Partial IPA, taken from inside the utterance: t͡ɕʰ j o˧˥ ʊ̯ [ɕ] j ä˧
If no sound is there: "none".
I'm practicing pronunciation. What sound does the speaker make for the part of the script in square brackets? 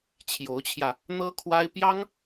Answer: t͡ɕʰ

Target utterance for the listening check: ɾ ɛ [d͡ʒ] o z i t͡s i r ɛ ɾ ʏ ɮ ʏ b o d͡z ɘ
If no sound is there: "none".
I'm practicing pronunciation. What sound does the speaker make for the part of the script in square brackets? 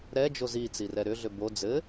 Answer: d͡ʒ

